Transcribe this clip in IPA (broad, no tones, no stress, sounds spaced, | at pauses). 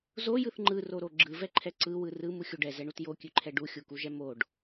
z o j ɯ θ ŋ͡ǃ ɯ r o ɾ o ɡ͡ǁ ɯ v ɛ ǃʰ ɛ ǀ ɯ w ɯ r ɯ m u xʲ u ɖ ɛ z ɛ ɳ u t j o kʲ ʉ ǃʰ ɛ ɖ u xʲ u k u ʒ ɛ m o ɖ